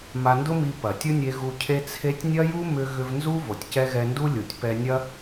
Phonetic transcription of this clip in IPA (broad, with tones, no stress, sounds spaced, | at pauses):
m a˧ n d ʊ˦ m i˧ p ɐ˨ tʲ ʊ˦ nʲ e˧ ɣ u˧ cʰ e˦ t͡sʰ e˦ tʲ nʲ ɐ˦ j u˦ m ʏ˧ ɣ ʏ˧ v n z u˦ v o˨ tʲ c ɛ˧ ɣ ɛ˧ n d u˦ lʲ u˨ tʲ p ɛ˧ nʲ ɐ˦